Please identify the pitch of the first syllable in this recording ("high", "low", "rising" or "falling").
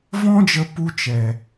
high